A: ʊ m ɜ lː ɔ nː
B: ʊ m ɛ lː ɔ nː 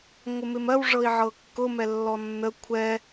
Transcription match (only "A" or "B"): B